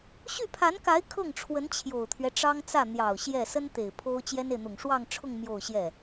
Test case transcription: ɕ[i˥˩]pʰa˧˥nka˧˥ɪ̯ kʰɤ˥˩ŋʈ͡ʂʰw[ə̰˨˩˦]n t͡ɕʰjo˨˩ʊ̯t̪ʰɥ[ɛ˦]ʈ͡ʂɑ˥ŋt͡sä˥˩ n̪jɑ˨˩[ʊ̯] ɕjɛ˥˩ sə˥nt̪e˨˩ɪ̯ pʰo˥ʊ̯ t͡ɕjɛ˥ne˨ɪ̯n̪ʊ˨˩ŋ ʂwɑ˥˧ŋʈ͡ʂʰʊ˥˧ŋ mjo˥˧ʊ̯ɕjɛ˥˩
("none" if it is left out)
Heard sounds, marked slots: y˥˩, ə˧˥, ɛ˦, ʊ̯

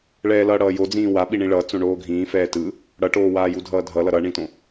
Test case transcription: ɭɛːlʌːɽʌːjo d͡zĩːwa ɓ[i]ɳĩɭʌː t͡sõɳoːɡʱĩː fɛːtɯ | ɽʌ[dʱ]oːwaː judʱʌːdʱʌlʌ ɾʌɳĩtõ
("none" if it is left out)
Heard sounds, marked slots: i, ʈ

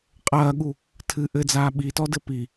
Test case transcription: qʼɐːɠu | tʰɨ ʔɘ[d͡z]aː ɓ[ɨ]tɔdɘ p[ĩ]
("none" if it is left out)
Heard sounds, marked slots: d͡z, i, i

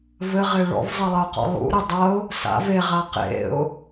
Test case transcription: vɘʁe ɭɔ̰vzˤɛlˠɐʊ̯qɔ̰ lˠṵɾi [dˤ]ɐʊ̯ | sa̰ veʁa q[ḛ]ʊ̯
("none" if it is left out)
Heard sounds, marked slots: dˤ, ḛ

